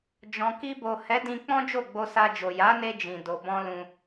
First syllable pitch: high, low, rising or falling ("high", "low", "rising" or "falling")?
low